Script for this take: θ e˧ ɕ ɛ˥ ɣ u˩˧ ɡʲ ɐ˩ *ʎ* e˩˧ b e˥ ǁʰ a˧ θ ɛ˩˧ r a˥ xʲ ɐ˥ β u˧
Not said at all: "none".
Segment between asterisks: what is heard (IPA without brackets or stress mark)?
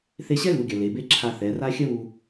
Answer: l